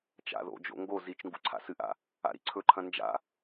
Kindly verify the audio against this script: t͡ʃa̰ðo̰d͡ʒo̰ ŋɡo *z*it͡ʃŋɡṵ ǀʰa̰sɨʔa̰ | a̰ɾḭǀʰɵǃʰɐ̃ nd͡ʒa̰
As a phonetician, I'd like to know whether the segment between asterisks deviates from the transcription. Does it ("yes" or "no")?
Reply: no